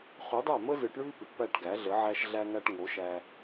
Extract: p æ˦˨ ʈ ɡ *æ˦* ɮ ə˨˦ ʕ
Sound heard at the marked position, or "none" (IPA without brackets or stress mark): æ˨˦